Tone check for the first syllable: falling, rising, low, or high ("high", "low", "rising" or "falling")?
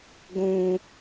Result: low